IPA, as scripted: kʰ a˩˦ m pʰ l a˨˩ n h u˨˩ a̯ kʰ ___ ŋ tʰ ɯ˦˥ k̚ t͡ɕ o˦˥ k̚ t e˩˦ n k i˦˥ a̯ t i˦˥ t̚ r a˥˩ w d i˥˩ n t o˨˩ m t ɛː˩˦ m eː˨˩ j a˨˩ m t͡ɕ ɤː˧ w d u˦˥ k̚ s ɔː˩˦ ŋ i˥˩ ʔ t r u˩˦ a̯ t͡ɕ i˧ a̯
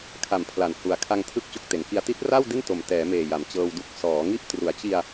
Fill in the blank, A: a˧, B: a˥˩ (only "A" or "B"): A